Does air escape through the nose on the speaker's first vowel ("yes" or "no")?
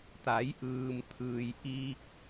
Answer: no